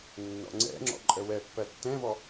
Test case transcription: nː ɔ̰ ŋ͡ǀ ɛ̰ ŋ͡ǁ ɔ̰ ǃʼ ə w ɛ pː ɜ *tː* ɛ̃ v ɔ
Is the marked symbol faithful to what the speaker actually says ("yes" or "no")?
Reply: yes